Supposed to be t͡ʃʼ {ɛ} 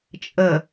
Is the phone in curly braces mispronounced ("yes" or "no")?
yes